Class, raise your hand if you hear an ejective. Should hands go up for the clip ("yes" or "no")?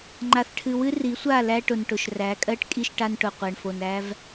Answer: yes